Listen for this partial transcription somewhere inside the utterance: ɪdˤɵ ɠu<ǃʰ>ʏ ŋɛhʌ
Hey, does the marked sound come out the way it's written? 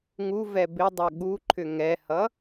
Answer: yes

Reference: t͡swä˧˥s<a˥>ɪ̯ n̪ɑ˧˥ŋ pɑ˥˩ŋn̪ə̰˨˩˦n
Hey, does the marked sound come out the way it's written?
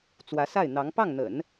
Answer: no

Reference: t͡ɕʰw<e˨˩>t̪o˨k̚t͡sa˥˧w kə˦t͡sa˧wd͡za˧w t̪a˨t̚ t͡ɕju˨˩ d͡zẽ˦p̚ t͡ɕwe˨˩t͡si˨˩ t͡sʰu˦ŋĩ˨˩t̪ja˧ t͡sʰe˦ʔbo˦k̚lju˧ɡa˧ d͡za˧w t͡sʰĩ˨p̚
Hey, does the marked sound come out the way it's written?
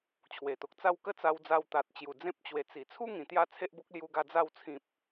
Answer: yes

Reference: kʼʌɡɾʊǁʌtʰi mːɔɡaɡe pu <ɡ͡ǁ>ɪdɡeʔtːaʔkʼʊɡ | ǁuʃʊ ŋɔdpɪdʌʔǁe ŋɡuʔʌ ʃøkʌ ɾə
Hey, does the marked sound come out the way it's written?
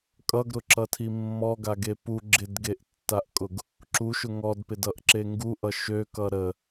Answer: yes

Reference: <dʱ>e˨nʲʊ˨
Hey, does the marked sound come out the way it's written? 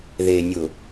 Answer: no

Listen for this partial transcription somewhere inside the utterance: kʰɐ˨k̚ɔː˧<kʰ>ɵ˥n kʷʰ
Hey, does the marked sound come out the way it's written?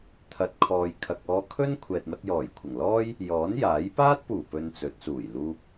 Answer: yes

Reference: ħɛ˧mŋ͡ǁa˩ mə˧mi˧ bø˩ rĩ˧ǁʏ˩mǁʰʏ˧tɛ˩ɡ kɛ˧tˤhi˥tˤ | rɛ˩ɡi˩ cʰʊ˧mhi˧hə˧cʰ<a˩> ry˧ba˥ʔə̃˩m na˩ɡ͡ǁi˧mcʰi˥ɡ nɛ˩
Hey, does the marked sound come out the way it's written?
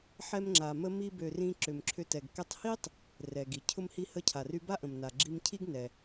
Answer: yes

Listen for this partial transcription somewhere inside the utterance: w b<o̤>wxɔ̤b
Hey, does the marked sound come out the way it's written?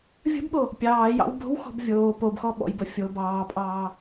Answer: yes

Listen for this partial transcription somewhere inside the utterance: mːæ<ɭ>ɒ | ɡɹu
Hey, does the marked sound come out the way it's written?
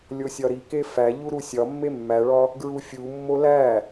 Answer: yes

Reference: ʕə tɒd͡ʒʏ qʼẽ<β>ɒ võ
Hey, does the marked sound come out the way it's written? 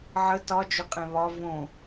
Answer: yes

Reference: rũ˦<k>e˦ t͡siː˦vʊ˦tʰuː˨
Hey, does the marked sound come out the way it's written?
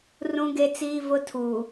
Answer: no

